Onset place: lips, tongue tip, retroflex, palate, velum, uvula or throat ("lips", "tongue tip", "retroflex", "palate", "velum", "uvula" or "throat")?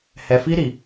throat